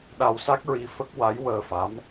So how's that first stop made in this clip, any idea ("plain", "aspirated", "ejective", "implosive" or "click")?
implosive